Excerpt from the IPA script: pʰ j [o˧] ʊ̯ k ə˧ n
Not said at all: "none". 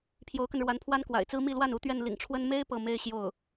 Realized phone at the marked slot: o˧˥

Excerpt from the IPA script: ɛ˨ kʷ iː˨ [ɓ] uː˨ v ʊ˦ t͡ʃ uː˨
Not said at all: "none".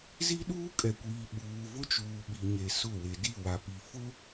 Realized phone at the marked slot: ɓ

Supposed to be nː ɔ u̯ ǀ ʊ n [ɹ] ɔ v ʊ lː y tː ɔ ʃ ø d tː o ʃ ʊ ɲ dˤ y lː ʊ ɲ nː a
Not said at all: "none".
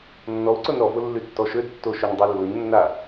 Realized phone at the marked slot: ɾ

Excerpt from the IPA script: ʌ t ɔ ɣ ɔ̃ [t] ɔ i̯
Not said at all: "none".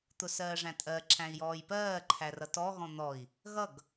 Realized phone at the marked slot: n̪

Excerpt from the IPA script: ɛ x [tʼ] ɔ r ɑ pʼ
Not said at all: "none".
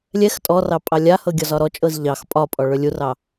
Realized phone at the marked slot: tʼ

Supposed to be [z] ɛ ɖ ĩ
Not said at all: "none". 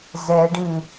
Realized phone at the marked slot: z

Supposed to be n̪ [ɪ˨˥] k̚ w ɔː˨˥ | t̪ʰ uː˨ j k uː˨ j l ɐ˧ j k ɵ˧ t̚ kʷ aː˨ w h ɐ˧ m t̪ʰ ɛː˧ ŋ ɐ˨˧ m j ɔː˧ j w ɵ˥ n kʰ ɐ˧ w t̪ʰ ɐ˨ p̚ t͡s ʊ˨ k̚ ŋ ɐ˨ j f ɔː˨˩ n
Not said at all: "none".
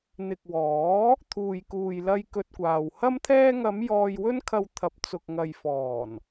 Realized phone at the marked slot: ɪ˨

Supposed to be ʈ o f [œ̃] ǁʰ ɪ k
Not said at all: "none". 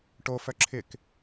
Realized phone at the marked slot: œ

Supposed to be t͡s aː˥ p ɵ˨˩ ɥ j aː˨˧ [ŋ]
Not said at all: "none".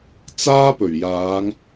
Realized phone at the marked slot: ŋ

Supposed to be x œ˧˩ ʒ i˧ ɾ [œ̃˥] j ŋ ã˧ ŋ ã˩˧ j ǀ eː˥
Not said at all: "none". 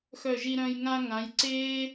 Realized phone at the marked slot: œ̃˧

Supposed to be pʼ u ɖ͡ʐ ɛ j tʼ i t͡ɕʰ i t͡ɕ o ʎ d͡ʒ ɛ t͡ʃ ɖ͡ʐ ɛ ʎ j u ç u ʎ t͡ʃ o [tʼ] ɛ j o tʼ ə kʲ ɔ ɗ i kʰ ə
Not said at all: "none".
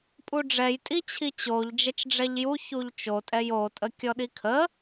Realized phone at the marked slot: tʼ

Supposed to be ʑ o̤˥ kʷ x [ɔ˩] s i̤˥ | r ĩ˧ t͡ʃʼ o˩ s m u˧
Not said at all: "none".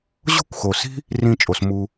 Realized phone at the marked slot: o˩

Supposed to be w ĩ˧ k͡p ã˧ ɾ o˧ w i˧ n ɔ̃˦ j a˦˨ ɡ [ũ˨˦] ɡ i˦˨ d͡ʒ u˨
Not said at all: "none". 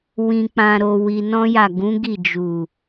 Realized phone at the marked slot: ũ˨˦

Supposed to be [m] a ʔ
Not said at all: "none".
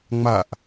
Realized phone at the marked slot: ŋ͡m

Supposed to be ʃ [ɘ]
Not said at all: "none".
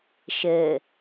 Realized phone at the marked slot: ɘ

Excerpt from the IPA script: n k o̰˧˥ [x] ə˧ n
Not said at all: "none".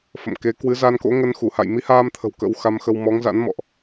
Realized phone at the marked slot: ŋ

